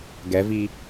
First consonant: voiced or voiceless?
voiced